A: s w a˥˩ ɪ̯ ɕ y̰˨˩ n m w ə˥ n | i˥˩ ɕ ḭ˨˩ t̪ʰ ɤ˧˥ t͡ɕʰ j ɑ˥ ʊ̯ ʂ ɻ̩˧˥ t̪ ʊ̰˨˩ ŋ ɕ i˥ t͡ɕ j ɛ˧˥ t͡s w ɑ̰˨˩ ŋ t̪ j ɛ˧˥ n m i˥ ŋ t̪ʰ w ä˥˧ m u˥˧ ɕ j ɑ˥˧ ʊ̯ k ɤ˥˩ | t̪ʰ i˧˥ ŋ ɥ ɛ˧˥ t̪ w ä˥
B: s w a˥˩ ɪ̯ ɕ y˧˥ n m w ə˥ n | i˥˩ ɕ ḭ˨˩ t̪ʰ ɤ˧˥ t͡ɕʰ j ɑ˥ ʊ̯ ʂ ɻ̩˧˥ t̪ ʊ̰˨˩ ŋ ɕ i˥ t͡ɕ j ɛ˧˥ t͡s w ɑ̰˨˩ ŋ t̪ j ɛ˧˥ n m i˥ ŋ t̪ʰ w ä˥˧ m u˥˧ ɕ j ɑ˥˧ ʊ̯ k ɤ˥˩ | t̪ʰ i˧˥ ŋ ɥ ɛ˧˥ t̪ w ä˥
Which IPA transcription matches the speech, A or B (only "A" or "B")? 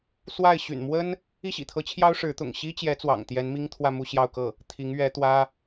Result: A